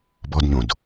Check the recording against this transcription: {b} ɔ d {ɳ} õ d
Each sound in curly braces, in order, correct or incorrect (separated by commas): correct, incorrect